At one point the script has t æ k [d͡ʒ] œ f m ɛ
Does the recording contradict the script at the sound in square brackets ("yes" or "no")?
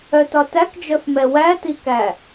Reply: no